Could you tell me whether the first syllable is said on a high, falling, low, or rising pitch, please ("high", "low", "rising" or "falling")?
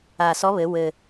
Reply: low